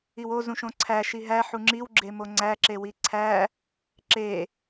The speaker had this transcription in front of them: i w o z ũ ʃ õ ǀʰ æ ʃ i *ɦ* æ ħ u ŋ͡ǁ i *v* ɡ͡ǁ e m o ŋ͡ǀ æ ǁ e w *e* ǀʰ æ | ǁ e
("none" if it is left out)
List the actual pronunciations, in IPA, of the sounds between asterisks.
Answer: ɦ, w, i

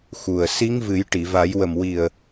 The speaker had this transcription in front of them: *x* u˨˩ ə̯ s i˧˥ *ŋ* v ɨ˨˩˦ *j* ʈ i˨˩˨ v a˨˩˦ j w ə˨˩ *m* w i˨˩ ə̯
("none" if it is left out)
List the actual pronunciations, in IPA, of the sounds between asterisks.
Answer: x, ŋ, j, m

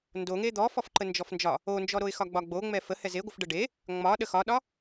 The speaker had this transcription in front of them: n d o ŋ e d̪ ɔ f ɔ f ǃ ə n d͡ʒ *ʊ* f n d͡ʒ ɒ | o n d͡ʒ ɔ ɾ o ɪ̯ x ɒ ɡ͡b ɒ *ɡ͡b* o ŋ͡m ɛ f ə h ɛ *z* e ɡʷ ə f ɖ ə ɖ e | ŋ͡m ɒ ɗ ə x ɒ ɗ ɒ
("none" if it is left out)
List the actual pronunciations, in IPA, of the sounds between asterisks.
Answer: ɔ, ɡ͡b, z

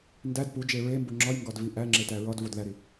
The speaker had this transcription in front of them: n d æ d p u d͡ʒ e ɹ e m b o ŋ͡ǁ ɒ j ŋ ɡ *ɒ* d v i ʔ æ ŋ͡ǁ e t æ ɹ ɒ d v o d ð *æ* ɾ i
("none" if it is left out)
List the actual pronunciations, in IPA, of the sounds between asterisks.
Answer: ɒ, æ

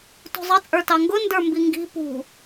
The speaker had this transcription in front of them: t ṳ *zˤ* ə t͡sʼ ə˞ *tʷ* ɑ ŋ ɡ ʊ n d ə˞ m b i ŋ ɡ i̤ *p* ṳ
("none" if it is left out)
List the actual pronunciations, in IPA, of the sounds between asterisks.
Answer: zˤ, t, p

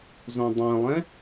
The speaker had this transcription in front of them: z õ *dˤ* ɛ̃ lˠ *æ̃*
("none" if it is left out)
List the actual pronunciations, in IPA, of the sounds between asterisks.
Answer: dˤ, ɛ̃

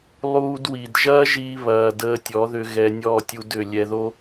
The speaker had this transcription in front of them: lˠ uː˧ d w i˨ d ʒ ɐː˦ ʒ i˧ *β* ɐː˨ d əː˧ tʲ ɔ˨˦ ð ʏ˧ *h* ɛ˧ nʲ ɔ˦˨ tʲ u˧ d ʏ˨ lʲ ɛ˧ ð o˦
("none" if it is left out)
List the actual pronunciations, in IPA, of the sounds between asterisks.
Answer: β, ɣ

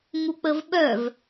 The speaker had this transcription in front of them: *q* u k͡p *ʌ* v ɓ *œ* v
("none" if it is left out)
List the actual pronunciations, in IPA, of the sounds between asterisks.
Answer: ŋ, ə, œ

